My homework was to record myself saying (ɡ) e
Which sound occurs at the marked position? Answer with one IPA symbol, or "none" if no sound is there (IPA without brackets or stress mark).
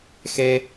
x